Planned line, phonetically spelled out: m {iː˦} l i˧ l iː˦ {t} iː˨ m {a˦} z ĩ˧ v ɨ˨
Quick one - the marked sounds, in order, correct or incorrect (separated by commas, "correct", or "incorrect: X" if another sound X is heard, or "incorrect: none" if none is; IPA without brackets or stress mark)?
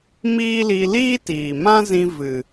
correct, correct, incorrect: ã˦